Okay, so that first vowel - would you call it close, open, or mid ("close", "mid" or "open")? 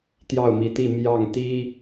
open